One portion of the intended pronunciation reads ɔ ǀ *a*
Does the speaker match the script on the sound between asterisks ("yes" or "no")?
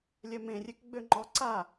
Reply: yes